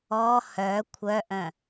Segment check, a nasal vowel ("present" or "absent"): present